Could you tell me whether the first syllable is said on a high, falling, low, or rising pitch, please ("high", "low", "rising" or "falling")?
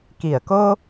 low